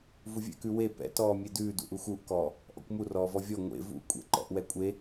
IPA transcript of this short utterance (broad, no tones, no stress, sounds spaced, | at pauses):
v u vʲ ɛ̰ k ʉ w e p ɛ̰ t ɔː mʲ e d ʉː d ṵ ʔ u x u ʔ k ɔː | ʔ ɔ̰ kʷ m u r ɔː v ɔ vʲ ɔ ŋʷ ḛ v ṵ kʷʼ ɛ̰ ǃ ɔ̰ ʔ w ɛ kʷʼ e